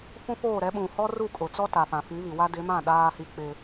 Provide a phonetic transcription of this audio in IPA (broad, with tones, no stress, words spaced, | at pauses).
fũ˦foː˦˨ ɾɛ˨˦ ɓũ˨hɔ˦ru˦˨kʼʊ˨ t͡sɔ˦ta˨fã˨ fi˨˦βi˨wa˦ dɪ˨˦mã˦˨ ɗaː˦hi˦ k͡pɪ˦